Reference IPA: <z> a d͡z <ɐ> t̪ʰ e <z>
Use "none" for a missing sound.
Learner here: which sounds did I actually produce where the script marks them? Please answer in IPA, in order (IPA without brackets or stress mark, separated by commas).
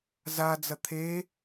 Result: z, ɐ, none